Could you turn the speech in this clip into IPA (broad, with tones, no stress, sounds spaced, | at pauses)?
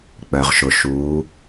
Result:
k͡p œ˩ ʁ ʃ ʊ˩ ʃ u˩˧